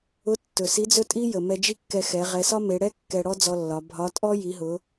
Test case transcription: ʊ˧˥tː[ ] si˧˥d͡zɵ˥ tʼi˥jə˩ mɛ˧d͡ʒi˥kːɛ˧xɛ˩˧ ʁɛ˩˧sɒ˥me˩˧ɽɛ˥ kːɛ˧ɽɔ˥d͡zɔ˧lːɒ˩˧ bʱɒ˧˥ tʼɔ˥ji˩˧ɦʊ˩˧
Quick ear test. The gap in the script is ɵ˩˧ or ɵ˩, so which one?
ɵ˩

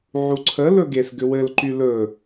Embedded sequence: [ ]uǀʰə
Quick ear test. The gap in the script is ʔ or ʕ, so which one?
ʕ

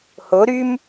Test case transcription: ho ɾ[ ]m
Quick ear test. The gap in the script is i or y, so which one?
y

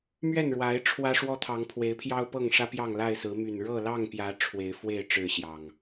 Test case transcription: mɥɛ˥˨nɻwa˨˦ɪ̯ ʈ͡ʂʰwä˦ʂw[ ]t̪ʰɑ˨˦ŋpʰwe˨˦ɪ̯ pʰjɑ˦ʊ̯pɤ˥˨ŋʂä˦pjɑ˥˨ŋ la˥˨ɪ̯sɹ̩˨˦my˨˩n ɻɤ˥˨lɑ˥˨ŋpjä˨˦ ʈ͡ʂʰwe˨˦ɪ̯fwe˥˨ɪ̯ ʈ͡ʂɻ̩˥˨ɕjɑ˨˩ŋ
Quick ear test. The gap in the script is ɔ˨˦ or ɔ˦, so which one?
ɔ˦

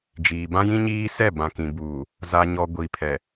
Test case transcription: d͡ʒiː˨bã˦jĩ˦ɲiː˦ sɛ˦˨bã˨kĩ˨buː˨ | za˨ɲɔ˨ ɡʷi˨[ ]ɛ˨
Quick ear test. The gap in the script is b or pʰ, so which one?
pʰ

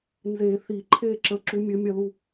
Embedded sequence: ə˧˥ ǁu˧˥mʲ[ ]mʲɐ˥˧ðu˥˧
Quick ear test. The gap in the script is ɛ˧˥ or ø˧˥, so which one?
ø˧˥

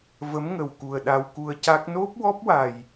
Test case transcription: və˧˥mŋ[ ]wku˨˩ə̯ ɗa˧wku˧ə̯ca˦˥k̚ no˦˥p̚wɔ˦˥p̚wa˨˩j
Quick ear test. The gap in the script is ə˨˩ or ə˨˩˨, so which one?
ə˨˩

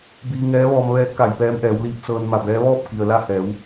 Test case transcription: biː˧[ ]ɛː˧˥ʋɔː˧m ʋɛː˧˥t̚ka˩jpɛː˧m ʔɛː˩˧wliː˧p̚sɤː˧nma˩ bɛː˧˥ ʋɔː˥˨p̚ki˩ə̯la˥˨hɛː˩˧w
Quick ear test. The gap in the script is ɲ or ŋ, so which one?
ŋ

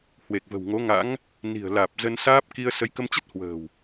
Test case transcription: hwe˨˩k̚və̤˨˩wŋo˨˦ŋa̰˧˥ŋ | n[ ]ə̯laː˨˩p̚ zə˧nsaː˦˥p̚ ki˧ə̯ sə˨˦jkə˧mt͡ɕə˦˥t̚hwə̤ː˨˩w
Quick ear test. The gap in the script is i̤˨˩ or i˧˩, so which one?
i̤˨˩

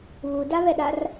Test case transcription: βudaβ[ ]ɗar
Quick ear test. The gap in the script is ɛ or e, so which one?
ɛ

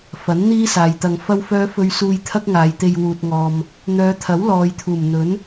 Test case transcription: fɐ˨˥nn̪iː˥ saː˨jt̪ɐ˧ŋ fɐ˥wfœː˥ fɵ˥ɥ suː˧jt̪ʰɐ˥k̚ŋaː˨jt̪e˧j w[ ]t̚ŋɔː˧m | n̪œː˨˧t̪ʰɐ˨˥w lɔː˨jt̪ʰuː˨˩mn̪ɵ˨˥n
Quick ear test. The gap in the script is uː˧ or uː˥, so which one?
uː˧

